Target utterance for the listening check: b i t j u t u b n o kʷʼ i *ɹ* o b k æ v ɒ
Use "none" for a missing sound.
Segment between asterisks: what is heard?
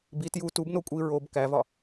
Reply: ɹ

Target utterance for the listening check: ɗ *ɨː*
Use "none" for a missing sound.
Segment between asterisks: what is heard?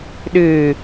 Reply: ɨː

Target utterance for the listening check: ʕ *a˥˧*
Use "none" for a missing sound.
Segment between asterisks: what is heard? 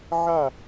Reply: a˥˧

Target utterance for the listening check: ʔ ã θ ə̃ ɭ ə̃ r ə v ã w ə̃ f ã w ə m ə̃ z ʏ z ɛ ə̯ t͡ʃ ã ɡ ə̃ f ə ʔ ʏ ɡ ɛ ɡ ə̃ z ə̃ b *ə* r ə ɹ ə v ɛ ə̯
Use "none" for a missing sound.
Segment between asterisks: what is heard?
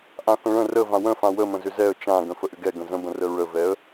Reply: ə̃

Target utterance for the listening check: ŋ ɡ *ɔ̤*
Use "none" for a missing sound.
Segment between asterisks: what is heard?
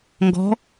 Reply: ɔ̤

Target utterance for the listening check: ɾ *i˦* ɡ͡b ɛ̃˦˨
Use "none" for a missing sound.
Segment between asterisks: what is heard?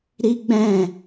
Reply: i˦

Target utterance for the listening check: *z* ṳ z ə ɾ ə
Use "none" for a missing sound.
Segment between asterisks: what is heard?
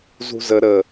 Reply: z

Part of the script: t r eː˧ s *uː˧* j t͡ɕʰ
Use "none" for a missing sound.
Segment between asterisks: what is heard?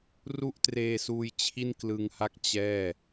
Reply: uː˧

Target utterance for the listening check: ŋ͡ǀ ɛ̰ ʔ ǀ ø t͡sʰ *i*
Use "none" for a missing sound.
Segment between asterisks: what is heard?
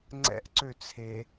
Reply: e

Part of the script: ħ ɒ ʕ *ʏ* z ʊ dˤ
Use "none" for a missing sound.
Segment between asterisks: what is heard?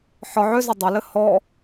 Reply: ʏ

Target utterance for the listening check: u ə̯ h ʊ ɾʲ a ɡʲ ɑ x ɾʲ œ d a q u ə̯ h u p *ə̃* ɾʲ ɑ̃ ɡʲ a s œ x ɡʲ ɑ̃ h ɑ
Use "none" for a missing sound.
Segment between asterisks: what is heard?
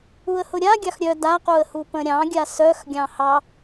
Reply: ə̃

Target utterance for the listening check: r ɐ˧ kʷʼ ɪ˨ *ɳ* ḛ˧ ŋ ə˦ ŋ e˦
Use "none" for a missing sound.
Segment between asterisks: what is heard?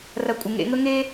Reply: ŋ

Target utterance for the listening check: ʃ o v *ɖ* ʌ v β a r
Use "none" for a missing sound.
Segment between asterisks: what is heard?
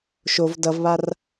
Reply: d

